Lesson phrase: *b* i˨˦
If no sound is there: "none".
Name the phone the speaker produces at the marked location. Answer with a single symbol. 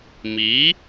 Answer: m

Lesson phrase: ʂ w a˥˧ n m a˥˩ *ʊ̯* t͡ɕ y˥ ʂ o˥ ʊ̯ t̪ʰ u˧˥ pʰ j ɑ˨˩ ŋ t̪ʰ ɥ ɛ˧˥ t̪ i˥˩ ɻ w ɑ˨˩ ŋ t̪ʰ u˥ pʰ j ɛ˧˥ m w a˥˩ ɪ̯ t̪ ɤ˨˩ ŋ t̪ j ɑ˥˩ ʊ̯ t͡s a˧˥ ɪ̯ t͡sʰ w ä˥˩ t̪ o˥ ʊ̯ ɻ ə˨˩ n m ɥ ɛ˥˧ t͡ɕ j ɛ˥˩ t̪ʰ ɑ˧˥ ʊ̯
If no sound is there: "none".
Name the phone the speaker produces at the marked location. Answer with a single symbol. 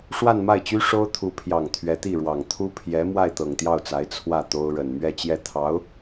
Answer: ɪ̯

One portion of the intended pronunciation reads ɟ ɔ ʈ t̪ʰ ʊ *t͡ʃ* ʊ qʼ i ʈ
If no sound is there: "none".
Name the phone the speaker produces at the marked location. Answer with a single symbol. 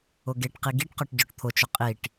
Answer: t͡ʃ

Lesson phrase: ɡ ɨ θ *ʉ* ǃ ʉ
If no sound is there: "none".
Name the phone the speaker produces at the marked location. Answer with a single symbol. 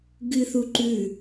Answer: u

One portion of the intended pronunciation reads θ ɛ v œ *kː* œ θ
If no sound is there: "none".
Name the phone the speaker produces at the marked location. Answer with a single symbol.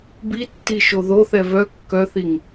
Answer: kː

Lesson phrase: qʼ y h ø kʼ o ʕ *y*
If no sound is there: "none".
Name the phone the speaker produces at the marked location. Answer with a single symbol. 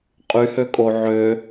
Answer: ø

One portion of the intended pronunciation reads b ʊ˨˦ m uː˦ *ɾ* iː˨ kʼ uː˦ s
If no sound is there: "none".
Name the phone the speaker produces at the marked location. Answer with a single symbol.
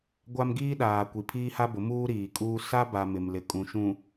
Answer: ɾ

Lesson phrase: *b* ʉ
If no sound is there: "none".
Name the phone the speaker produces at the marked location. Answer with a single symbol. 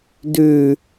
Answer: d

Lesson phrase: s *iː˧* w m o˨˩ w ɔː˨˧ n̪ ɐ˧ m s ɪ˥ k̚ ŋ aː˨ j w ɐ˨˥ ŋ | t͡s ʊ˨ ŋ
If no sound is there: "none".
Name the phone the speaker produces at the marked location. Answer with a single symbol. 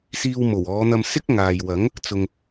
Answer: iː˧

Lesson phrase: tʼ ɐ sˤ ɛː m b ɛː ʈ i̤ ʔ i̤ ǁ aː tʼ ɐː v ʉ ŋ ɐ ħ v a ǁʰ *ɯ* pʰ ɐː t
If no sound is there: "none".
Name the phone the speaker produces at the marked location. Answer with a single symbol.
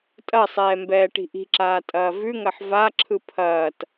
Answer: ɯ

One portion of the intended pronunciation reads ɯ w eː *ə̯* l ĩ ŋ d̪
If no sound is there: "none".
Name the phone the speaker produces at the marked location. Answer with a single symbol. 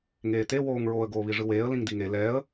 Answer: ə̯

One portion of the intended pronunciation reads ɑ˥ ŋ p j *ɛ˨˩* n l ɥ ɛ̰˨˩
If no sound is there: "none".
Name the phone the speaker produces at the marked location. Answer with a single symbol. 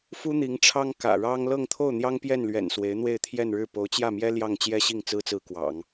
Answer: ɛ˥˩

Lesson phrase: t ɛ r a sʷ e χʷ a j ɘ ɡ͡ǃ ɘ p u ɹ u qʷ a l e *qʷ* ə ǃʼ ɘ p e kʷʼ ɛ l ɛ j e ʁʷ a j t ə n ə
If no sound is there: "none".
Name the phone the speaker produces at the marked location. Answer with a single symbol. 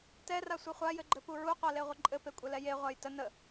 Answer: ʁʷ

